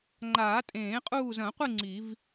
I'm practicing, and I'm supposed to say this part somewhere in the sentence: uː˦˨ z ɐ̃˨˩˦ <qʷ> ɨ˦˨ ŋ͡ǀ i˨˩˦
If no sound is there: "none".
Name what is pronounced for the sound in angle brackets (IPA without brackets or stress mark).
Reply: qʷ